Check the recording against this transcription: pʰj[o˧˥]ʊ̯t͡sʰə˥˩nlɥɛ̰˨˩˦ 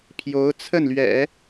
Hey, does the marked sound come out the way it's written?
yes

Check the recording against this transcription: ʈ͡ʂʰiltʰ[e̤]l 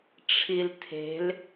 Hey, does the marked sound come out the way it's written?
yes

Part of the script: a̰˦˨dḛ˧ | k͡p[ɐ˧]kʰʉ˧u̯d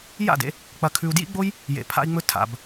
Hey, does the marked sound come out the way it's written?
yes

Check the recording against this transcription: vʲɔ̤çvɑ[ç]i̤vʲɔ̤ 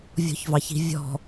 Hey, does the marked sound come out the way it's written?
yes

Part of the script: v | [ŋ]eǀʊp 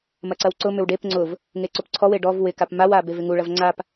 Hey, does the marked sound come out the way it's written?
yes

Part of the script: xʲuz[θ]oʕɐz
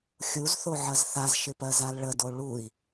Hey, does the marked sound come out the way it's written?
yes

